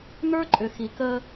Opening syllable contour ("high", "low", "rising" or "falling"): high